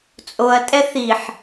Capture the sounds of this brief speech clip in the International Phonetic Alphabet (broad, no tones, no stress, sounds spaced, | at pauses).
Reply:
t͡sʼ o ɐ̯ tʼ ɛ θ i ħ